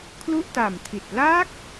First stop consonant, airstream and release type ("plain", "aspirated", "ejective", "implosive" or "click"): aspirated